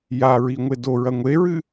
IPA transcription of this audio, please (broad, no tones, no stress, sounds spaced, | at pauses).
j a ɹ i ŋʷ e d o ɹ ɐ ŋʷ e ɹ ɨ